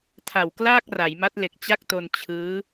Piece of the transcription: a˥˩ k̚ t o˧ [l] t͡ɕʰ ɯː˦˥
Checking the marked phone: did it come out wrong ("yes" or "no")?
yes